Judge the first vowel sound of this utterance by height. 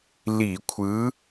high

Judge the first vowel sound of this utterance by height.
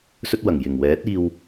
mid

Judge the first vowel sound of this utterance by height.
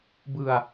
high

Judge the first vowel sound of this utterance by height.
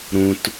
high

